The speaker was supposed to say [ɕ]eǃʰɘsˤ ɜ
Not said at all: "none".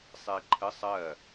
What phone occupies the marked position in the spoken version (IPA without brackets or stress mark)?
sˤ